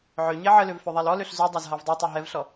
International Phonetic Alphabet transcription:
ʕ ø ɲ e ʕ ə l ø v f ø ðˤ a l ɔ l ø ɬ z u dˤ a z ɦ a v dˤ ɛ tˤ u ɦ ɛ v ɬ ɔ

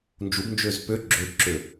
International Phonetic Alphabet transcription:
n d͡ʒ u b n d͡ʒ ø z p ø ɡ͡ǁ ø b ǁ ø

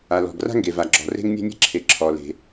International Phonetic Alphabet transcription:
a˩ l ɔ̤˩ ɡ r a̤˥ ŋ ɡ e˩ v a˩ ɡ͡ǁ ɔ̤˩ r e̤˥ ŋ nʲ ɛ̤˥ nʲ e̤˥ ǁʰ e˩ ǁʰ ɔ˩ l e̤˩

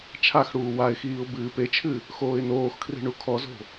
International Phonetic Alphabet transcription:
t͡ʃʰ a x ɽ uː w a ɪ̯ x iː ʊ̯ b ɨː p e t͡ʃʰ ɨ | x oː ɪ̯ n oː x kʰ r i̤ ɳ u kʰ ɔ z o̤

